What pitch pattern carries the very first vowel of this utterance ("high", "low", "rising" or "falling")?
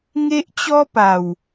high